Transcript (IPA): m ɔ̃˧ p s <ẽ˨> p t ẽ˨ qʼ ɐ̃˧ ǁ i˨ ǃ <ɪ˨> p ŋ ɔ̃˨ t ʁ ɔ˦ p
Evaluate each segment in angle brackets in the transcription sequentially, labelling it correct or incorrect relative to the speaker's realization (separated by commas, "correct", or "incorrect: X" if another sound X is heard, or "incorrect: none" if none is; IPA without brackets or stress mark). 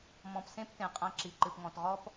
incorrect: ẽ˦, incorrect: ɨ˨